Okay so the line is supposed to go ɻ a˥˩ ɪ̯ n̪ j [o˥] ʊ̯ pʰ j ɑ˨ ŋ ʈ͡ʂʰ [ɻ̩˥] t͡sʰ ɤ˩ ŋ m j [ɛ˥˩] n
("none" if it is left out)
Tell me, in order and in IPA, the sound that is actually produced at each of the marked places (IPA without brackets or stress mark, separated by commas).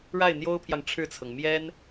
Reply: o˥, ɻ̩˥˩, ɛ˥